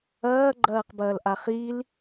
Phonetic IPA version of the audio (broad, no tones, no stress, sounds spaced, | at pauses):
ɐː ɡ͡ǃ ɐː q b ɐː l ʔ a χ i l